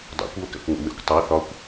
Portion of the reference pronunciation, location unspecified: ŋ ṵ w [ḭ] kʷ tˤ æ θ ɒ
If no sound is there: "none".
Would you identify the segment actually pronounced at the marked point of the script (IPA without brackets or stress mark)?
ḛ